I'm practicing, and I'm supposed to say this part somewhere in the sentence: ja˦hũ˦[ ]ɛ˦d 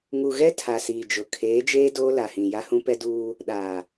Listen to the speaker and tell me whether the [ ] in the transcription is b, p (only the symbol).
p